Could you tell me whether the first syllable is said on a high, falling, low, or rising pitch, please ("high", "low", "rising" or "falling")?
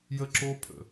high